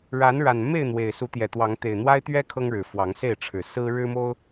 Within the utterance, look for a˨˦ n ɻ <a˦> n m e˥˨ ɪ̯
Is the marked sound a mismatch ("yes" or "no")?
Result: yes